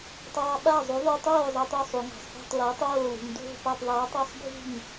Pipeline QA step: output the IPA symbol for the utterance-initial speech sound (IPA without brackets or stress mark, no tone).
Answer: tˤ